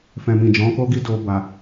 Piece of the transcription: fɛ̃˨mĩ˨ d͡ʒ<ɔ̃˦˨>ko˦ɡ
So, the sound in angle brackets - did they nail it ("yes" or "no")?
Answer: no